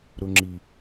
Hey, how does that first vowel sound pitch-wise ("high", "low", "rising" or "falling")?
low